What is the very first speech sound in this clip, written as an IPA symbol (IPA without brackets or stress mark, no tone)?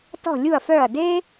t